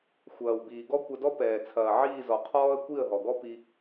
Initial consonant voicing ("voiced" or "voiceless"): voiceless